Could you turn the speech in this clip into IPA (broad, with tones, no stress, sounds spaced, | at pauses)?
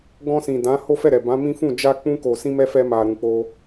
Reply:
ɡ ɔ̃˧ s ĩ˨ d ã˨˦ h o˦ f ɛ˦˨ ɾ ɛ˨ b ã˨˦ m ĩ˦ f ũ˦˨ d͡ʒ a˧ k͡p ũ˦ k o˧ s ĩ˦ m ɛ˦ f ɛ˦ m a˧ ɾ ũ˧ k͡p o˦